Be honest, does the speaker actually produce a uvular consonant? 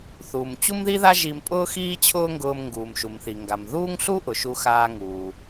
no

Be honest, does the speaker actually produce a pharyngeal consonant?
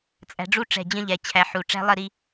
yes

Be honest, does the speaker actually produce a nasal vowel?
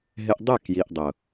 no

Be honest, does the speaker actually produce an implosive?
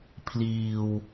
no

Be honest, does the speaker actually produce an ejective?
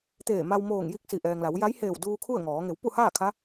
no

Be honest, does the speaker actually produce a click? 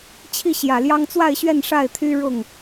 no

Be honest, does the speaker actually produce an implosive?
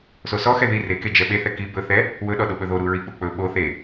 yes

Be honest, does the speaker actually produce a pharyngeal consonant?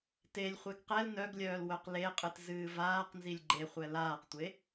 no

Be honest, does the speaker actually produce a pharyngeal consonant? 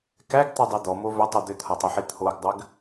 yes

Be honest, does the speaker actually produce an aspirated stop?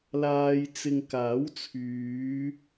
yes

